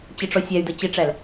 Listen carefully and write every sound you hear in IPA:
t͡ɕ ɪ ʈ͡ʂ ɔ sʲ æ y̯ d ə t͡ɕ ɪ ʈ͡ʂ æ l

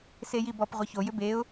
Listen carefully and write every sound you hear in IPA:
s e j i b ɔ p ʁʷ i ç o j ʏ b e ʊ̯

